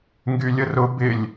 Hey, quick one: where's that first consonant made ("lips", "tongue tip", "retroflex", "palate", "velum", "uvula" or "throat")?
velum